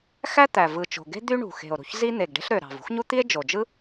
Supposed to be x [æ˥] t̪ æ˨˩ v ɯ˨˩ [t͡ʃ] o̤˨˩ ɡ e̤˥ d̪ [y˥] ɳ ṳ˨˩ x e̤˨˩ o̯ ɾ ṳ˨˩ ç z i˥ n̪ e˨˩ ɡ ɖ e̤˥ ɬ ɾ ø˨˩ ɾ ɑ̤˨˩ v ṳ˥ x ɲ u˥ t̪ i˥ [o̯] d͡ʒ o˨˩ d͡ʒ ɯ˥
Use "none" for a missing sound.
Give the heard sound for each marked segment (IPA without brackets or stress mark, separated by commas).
æ˥, t͡ʃ, y˥, e̯